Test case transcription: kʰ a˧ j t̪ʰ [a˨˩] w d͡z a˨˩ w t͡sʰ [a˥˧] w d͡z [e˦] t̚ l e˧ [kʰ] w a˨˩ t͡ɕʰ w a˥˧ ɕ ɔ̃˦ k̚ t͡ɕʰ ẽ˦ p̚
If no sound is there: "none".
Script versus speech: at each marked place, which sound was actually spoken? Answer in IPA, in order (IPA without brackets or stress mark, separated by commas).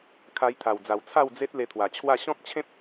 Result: a˨˩, a˥˧, e˦, t̪ʰ